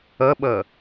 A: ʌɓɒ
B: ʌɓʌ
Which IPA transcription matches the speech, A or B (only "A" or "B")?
B